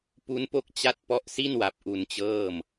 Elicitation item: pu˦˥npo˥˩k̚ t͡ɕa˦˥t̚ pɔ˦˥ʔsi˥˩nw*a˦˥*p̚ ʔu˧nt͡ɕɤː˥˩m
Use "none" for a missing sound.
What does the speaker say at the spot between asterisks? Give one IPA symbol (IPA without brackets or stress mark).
a˨˩